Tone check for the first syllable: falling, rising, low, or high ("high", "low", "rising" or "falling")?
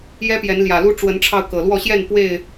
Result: high